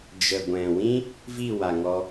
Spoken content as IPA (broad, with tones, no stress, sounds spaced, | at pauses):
d͡ʒ ə˨ ɡʷ ɛ̃˨ w ĩ˦ | v i˦˨ w a˨ ŋ ɔ˧